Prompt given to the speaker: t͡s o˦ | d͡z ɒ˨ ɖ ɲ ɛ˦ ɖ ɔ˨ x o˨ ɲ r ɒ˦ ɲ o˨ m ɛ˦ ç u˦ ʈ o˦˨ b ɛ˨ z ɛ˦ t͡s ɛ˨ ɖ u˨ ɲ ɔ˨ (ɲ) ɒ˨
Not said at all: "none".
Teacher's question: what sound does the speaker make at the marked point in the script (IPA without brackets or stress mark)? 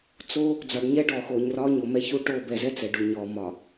m